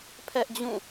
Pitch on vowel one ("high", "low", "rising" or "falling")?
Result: high